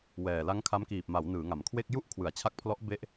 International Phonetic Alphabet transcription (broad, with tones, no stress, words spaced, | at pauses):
wɛː˨˩ la˦˥ŋkʰa˦˥mkiː˨˩p̚ma˩˦w nɯː˩˦ŋa˩˦mkʰwe˥˩k̚ ju˥˩ʔkʰwɯ˩˦a̯t͡ɕʰa˦˥k̚pʰlɔ˦˥ʔ be˦˥ʔ